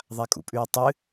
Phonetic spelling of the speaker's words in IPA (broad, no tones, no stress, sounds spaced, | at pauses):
ðˤ a kʼ ṵ pʼ ʉ ɹ tˤ ɨ